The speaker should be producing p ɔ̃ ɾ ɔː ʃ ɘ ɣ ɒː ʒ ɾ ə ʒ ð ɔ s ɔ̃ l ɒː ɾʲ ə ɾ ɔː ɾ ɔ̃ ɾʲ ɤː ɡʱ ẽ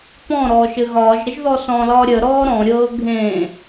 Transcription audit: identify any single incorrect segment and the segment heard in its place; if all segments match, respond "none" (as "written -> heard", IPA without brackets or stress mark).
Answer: none